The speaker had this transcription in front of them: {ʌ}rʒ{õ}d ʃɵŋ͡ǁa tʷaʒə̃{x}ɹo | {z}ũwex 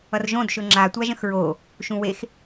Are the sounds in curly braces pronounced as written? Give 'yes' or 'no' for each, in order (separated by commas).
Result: yes, yes, yes, no